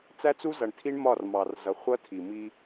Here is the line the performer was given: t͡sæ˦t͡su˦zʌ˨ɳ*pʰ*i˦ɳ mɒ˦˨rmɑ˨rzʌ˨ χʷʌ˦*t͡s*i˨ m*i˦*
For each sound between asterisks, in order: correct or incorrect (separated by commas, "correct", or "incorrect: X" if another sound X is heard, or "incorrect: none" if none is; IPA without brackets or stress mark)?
incorrect: tʰ, incorrect: tʰ, correct